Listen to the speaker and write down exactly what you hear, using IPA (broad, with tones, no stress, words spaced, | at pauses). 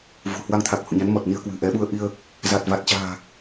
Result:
vṳ˨˩hwa˧ŋt̪ʰa˨˩k̚ hṵ˧˨ɲa˨˦n mɔ˨˩t̚ni˧ə̯kwɨ̤˨˩ ʔɛ˨˦ɓu˧ə̯ ʔi˧ə̯ | za˨˩t̚va˨˩t̚t͡ɕa̤ː˨˩